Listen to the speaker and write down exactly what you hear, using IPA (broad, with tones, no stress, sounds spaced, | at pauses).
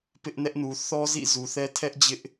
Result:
p ɪ˦ ʔ n ɛ˦ ʔ n u˨ θ ɔ˦ z ḭ˦˨ z u˨ θ ɛ˦ tʰ ɛ˦ ʔ d͡ʑ ɪ˦ ʔ